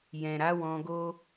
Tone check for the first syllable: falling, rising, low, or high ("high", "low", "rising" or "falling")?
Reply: low